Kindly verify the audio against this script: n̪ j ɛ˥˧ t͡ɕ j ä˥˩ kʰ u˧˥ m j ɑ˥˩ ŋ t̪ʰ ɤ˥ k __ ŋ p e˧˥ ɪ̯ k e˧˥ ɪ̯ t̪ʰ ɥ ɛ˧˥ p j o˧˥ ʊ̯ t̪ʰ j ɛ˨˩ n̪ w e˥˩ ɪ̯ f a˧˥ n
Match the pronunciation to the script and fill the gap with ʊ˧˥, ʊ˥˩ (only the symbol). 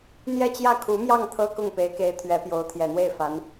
ʊ˥˩